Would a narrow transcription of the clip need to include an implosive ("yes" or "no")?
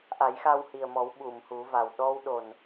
yes